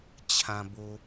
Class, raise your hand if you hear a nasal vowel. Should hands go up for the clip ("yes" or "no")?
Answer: yes